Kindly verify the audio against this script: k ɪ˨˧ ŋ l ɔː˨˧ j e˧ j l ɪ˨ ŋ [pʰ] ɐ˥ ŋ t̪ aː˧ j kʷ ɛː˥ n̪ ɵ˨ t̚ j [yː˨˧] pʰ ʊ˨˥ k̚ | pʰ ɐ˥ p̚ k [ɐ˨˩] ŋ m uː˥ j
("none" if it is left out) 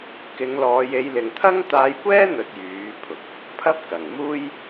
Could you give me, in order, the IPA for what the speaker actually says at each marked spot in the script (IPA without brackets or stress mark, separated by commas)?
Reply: t̪ʰ, yː˨˥, ɐ˨˩